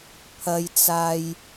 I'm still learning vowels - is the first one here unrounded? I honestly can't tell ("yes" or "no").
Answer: yes